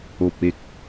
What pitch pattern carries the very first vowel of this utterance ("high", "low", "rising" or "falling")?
low